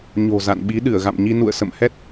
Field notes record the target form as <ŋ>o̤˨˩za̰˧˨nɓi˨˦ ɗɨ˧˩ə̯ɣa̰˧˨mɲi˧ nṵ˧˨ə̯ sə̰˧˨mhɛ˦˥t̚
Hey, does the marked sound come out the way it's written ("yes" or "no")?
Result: no